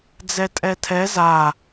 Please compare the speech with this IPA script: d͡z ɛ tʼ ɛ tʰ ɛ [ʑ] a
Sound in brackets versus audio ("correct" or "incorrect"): incorrect